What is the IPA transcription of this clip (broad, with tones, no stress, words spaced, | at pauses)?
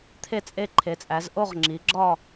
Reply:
t̪ʰe˦˨t͡sʼe˦˨ǃʰe˩˧t͡sʼæ˩˧z ʔo˦˨ʁŋ͡ǁi˩˧ɡ͡ǁɒ˦˨